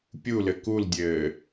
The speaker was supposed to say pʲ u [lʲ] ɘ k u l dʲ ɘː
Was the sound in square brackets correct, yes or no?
no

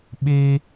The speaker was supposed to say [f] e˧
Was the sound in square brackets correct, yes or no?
no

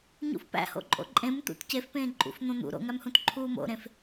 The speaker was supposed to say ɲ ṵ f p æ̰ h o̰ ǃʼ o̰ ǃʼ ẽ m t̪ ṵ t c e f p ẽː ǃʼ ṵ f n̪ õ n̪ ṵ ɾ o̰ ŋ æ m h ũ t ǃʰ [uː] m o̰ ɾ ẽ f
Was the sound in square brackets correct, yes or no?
yes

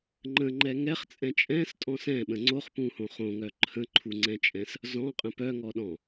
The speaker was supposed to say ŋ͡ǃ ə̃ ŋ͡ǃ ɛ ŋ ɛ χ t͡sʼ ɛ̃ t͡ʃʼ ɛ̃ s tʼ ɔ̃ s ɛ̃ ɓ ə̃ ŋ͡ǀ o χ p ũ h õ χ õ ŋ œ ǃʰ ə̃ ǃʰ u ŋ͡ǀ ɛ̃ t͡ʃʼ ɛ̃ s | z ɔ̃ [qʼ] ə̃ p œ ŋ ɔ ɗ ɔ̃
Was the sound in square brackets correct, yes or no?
yes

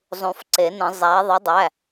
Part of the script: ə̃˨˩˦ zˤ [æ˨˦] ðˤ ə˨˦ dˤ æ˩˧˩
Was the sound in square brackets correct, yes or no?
yes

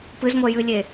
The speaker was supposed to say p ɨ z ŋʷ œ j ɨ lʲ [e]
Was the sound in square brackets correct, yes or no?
yes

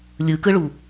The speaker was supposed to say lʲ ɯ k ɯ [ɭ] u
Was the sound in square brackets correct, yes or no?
yes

